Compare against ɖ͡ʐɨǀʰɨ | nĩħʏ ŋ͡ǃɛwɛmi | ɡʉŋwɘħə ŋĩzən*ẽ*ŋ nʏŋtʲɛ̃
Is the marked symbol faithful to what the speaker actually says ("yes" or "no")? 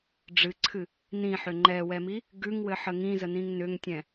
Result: no